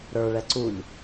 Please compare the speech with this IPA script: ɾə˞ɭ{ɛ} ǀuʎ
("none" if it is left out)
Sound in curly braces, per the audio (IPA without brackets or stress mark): ɛ